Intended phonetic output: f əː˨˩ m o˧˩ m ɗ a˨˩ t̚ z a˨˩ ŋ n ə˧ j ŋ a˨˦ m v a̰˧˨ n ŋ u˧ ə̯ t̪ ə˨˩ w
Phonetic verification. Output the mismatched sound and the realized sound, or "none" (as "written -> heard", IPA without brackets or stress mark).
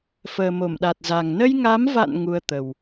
none